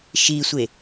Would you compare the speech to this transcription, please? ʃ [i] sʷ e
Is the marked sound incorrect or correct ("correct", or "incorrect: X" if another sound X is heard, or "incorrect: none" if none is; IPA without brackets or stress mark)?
correct